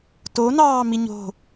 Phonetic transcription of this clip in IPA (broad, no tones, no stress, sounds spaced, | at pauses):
t o n ɑː m i ɲ o̤